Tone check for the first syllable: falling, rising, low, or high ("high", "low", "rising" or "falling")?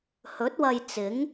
rising